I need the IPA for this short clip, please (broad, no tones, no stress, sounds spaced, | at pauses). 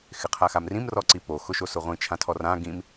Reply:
x ɪ qʰ a x a m r ĩ m r ɔ ǀ i p o x ʊ ʃ o s ʊ ʁʷ ĩ t͡ʃʰ ã tʰ ɔ r ã ɡ ĩ m